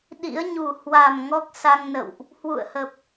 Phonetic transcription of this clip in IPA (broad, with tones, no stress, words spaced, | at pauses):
ɗḭ˧˥ə̯ɲu˨˩ hwa˨˩m ŋɔ˦˥k̚sa˧ŋnə̰˧˨wʔ | hwṵ˧˨ə̯hə˨˩p̚